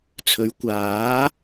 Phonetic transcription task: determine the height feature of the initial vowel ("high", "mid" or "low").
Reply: mid